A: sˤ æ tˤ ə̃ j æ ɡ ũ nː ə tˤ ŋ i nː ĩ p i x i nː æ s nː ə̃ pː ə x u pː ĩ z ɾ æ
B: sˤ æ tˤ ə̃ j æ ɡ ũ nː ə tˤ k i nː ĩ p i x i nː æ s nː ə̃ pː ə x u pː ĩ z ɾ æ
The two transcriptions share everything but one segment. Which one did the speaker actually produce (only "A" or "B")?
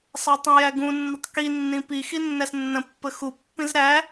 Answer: B